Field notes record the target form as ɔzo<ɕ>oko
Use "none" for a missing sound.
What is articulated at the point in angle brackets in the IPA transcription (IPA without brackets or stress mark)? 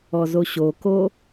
ɕ